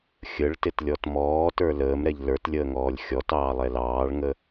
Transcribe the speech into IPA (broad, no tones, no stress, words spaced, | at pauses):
xʲəɭtɪtlʲɔt mɔːtə˞ ləːmɾɛʎ lə˞tlʲəːŋɔːlʲ xʲɔtɑːlˠɛ lɑːɭŋə